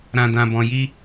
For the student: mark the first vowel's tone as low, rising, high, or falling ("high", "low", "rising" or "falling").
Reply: low